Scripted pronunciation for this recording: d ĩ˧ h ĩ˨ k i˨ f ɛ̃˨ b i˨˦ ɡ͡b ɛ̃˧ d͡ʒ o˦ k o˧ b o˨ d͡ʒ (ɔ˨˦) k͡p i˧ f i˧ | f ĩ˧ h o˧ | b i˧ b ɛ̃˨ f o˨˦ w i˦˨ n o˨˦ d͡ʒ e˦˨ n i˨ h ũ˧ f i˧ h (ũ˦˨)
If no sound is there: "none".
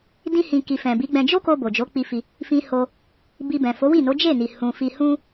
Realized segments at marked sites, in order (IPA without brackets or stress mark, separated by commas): o˨˦, ũ˦